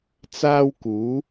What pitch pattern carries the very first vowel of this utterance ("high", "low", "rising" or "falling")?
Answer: high